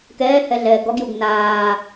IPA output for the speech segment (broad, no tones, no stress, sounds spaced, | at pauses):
k ɛː h ɛ ɮ ɛː ɡ ɔ ɡ j u ɡ n aː